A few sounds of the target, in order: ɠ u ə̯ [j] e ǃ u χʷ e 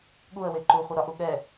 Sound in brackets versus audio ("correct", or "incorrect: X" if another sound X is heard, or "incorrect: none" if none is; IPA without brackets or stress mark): incorrect: w